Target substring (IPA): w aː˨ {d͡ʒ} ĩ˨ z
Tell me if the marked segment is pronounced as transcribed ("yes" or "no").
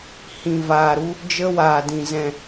no